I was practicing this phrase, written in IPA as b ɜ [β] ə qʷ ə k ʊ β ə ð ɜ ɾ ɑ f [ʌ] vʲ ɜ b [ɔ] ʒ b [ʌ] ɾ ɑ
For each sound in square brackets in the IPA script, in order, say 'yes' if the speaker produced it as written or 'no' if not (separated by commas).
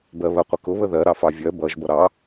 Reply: yes, no, no, yes